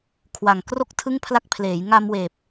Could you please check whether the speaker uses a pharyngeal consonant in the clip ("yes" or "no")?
no